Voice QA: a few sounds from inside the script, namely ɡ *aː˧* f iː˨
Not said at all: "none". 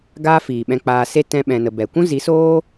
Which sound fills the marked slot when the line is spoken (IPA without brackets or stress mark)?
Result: aː˦